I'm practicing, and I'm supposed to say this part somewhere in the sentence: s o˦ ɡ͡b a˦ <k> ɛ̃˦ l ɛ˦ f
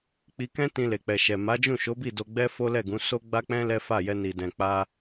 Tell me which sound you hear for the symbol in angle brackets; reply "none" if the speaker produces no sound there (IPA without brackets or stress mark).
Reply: k͡p